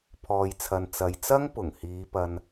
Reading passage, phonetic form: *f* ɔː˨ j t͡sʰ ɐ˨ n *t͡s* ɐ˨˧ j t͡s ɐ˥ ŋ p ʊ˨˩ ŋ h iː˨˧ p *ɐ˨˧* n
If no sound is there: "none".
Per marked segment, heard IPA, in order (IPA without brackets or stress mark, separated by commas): pʰ, t͡s, ɐ˨